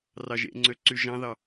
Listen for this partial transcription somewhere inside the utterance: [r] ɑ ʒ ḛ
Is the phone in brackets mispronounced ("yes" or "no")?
no